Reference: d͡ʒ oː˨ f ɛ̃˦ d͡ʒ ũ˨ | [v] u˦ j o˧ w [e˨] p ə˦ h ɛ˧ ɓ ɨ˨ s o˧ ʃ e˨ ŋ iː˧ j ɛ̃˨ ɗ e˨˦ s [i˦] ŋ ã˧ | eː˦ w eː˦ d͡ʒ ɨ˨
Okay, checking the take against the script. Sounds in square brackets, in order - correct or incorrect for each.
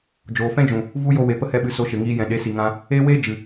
correct, correct, incorrect

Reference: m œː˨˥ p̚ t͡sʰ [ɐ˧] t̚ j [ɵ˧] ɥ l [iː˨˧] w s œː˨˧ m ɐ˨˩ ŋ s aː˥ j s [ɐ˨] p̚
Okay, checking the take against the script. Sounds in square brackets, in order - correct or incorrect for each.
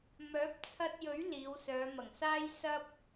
correct, incorrect, correct, incorrect

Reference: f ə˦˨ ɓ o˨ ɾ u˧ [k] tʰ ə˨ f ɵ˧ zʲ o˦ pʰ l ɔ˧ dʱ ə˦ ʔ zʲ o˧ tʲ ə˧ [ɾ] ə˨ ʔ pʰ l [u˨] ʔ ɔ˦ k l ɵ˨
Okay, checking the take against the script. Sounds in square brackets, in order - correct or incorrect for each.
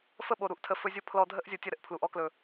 incorrect, correct, correct

